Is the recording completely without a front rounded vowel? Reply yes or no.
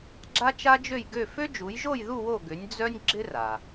no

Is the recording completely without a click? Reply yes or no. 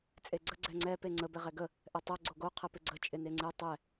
no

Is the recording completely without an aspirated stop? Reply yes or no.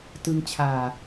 no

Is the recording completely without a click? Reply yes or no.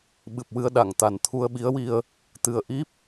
yes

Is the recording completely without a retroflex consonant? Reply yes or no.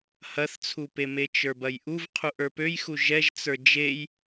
yes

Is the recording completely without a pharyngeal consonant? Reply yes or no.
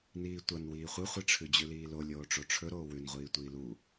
yes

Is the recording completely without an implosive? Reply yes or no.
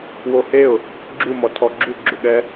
no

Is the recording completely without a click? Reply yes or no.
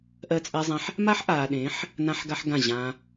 yes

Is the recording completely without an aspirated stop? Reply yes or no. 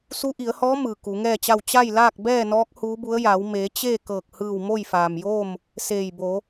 yes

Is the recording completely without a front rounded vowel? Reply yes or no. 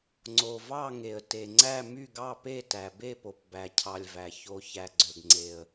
no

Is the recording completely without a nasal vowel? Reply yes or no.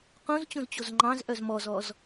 no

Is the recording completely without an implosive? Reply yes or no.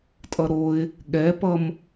no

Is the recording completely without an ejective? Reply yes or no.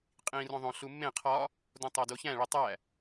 no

